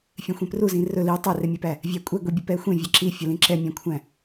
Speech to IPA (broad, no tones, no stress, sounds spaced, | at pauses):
fʲ ẽ xʷ ẽ p r u z ĩ r ɵ l i tˤ æ r e mʲ e p æ | vʲ æ kʷʼ ɛ ɡʷ i bʲ ɵ p ɛ xʷ ẽ vʲ ɛ ǁ i fʲ ɵ l ĩ ǁ ɛ mʲ æ̃ kʷʰ æ̃